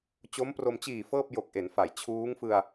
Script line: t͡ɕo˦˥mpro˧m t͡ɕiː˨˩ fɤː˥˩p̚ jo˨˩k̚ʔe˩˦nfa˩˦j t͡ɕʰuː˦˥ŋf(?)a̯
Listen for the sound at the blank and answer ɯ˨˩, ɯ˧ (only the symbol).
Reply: ɯ˧